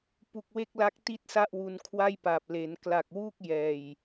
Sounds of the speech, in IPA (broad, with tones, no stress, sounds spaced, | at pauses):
p u˨˩ k̚ w e˥˩ k̚ l a˦˥ k̚ t i˥˩ t̚ s a˥˩ ʔ w u˧ n kʰ w a˥˩ j p a˨˩ p̚ l e˩˦ n k l a˨˩ k̚ w uː˥˩ k̚ j ɛː˨˩ j